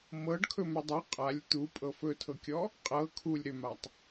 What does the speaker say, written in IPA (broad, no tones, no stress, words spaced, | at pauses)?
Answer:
mɤɖkʰɵmʏ dˤʏ qʼalʲ t̪upʼɤ fɵtʰɤkʲɔ | qʼɤ kʰulʲ ɾʏmatˤ